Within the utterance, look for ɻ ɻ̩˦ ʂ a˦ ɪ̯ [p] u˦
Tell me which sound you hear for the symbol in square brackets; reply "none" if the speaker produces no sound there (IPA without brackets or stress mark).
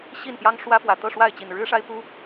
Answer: p